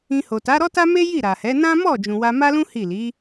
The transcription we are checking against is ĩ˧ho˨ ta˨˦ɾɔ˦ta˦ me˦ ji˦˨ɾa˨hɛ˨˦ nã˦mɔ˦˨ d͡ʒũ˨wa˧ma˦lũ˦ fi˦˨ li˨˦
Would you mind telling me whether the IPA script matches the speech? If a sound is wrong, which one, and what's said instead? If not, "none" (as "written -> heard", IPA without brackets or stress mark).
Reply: f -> h